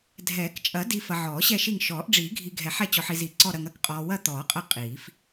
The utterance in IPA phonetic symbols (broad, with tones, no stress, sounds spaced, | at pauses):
dʱ ɛː˨˩˦ k t͡ʃʼ ɐ˨˩˦ d i˨ f ɐ˨ ʕ ɔː˨˩˦ ɕ ɛ˦˨ ʃ i˦˨ ŋ ʃ ɔː˨˩˦ ʔ ɖ͡ʐ iː˨˩˦ ɡʱ i˨ ɡʱ ɛ˨˩˦ ħ ɛ˦˨ t͡ɕ ɔ˨ ħ i˨ z i˨˩˦ ǀ ɔ˦˨ ɾ ɐ˨ ŋ ɐ˦˨ k qʼ ɔː˨ w ɐ˦˨ t̪ ɔː˨˩˦ qʼ ɐ˦˨ qʼ iː˨˩˦ f